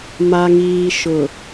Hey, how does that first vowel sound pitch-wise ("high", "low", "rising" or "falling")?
low